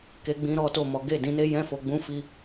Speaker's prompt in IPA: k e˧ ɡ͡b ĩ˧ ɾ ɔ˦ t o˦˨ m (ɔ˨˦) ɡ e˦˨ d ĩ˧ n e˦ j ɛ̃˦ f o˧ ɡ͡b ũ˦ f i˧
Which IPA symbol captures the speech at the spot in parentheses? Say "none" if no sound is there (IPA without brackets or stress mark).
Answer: ɔ˨˦